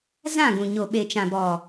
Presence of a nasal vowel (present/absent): present